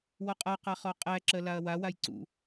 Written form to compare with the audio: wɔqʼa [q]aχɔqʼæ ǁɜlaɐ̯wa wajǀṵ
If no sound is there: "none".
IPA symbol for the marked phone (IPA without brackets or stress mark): q